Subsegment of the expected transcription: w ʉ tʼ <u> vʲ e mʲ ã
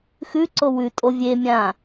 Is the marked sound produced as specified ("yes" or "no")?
no